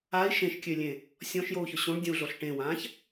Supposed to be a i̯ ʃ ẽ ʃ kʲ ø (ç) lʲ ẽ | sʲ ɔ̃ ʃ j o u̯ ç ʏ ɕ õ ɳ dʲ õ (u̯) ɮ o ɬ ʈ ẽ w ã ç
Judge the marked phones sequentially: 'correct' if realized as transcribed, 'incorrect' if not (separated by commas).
incorrect, correct